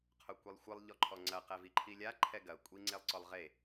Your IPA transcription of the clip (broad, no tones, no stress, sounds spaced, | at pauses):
qʰ o kʷ i lˠ xʷ ɨ lˠ ʎ ɔ ǃʰ ɔ ŋ͡ǀ ɐ q ɛ v i ǃʰ i lʲ a ǃʰ ɛ ɡ ɐ kʷʼ i ŋ͡ǀ e lˠ ǀ ɔ lˠ ʁ e